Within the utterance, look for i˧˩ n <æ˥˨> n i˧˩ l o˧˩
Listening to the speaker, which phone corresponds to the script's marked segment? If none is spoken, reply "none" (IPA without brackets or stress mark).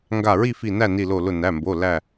æ˥˨